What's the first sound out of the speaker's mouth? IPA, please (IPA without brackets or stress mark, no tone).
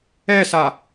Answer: ɛ